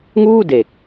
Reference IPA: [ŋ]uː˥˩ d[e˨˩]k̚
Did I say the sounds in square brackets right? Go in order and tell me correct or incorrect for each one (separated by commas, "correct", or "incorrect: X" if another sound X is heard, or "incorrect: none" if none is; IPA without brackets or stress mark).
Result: correct, correct